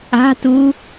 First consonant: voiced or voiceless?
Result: voiceless